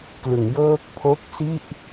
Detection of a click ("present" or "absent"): absent